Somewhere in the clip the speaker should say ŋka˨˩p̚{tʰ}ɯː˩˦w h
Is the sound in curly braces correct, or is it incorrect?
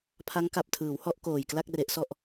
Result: correct